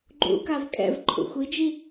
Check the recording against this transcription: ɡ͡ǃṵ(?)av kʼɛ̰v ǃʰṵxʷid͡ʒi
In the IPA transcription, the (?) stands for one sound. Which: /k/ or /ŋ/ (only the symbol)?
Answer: k